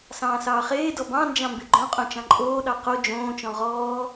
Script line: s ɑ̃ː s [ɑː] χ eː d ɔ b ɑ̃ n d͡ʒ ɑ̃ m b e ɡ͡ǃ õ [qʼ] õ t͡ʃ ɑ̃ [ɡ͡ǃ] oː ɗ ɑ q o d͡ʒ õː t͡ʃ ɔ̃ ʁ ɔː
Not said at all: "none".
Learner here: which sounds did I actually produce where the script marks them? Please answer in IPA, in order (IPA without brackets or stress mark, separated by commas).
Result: ɑː, qʼ, ǃʼ